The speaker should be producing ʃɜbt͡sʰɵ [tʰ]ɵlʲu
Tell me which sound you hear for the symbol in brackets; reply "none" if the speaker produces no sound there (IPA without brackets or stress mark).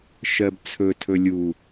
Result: tʰ